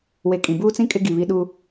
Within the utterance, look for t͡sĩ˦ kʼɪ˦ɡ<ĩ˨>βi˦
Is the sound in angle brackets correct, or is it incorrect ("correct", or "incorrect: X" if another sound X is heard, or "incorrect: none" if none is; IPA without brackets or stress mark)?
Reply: incorrect: i˨